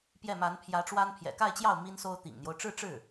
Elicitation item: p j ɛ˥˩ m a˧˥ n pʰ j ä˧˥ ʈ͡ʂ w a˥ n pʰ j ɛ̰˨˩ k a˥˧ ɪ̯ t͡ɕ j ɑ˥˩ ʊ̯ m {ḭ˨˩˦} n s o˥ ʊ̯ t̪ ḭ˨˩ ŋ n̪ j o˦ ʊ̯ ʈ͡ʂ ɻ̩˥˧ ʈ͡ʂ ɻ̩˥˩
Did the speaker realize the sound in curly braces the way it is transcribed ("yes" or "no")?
no